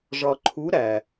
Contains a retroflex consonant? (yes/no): yes